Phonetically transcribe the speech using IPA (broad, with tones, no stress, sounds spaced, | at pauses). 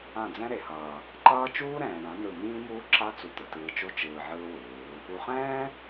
ã˦˨ d͡z ɛ̃˦ ɾ e˨ h ʌː˨ | ǃ ʌː˦ t͡ʃ uː˦ ɾ ɛ̃ː˨ ɳ ã˨˦ n ɯ˦˨ m ĩː˦ m uː˦ ǁ a˦ t͡s u˧ t̪ ɯ˨ t ɯː˧ t͡ʃ o˦ t͡ʃ ɯː˧ ʕ ɯː˦ w ɯː˨˦ | u˨ χ ɛ̃ː˦